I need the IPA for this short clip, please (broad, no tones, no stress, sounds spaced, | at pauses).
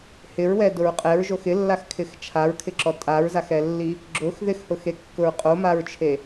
h ɪ ɹ w ɛ d ʊ ɹ qʼ ɛ ɹ ʒ o x ɪ lː a x kʰ ɪ x t͡ʃʰ a ɹ kʰ ɪ ǁ ɔ tʼ a ɹ z a x ɛ lː i | ɡ͡ǁ ʊ x ð ɪ x h ʊ x e kː ʊ ɹ qʼ o m a ɹ t͡ʃʰ e